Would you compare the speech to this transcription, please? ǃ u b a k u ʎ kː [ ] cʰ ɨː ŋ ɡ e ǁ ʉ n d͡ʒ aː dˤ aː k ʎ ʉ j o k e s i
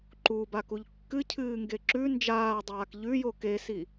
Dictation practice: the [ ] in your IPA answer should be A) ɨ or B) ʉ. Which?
A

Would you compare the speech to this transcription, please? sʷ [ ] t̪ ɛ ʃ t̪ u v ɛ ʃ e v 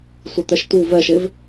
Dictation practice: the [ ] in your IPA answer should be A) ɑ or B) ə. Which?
B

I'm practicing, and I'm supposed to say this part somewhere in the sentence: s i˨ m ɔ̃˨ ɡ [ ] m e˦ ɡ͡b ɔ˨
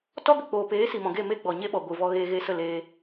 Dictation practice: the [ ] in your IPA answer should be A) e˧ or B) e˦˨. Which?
B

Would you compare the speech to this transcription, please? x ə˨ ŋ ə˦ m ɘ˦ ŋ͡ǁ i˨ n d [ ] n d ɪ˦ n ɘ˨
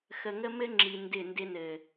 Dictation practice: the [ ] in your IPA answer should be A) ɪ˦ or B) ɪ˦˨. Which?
B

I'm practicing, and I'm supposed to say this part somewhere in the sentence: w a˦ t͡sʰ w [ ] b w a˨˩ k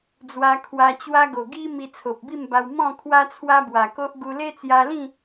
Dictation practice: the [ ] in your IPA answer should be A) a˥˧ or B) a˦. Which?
B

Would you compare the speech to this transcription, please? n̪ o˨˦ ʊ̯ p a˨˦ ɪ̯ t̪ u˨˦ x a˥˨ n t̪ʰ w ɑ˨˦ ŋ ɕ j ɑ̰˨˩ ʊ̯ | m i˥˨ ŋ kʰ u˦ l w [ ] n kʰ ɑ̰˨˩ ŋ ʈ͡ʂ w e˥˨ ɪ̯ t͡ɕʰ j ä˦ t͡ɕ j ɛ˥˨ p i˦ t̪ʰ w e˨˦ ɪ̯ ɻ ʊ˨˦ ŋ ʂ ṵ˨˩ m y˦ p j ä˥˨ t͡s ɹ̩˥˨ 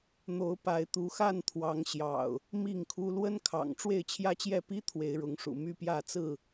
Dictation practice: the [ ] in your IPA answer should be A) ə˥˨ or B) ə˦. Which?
B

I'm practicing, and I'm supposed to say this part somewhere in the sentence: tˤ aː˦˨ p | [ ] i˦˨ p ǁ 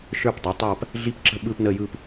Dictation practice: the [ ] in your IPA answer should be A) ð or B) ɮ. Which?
B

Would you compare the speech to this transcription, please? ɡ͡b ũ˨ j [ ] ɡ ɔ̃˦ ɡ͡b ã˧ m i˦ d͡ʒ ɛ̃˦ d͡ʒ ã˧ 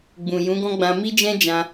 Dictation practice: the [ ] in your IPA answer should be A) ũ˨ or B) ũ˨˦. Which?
B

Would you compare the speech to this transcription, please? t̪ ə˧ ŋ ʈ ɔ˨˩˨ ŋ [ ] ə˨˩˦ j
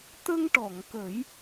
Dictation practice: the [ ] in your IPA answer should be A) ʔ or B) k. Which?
B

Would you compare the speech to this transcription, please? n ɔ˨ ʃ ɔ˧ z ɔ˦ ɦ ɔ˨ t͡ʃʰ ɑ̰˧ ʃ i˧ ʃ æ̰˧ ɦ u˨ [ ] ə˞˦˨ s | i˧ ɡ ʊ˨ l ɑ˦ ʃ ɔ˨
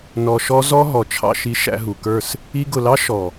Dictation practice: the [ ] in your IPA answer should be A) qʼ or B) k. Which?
B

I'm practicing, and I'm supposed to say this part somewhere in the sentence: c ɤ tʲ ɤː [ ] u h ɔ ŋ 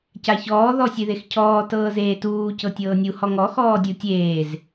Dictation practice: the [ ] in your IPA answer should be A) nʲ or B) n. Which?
A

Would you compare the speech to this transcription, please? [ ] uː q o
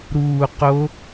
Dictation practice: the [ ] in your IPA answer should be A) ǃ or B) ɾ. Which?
B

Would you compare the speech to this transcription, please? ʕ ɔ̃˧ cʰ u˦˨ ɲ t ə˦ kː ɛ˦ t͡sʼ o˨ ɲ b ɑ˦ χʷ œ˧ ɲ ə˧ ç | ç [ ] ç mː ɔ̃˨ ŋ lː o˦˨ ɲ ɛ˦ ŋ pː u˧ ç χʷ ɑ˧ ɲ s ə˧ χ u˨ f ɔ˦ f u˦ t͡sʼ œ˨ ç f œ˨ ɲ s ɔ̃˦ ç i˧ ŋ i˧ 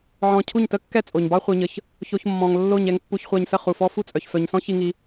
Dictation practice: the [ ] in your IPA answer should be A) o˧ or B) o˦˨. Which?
A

